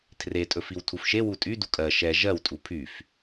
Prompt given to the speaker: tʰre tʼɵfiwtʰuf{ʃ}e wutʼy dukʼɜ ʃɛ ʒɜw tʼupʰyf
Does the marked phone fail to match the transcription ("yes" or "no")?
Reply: no